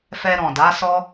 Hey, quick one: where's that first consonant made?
lips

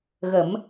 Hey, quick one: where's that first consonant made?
velum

